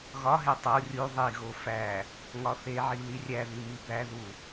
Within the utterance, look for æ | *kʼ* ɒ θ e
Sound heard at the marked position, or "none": ŋ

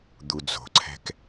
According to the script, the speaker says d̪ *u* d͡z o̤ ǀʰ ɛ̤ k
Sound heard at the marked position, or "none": u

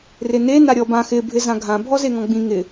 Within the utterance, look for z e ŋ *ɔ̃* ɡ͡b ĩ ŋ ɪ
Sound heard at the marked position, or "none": ɔ̃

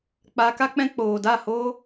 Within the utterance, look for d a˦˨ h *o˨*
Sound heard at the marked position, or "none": o˦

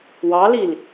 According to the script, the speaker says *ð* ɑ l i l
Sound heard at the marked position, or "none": w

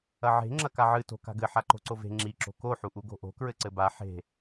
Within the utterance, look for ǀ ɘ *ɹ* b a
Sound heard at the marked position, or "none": none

